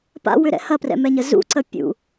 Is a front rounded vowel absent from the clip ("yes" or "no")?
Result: no